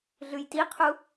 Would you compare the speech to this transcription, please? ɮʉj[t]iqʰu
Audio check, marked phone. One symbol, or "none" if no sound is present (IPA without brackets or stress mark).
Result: t